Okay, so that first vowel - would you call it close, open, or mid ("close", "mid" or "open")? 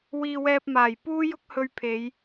close